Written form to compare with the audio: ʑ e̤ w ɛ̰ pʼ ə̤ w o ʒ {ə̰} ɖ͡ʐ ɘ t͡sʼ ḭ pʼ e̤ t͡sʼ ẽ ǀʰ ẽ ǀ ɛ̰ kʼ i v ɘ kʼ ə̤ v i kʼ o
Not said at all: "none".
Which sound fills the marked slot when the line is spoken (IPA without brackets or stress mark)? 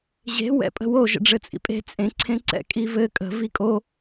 ə̰